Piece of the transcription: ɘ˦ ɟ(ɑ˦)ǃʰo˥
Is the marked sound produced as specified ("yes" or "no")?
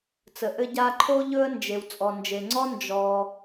no